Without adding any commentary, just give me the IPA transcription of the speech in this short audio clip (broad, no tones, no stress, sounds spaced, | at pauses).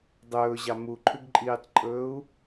dˤ ɵː ʑ ɑ m u ǃʰ ʉ ɡ ǃʼ iː tˤ ǃʼ ɵː u̯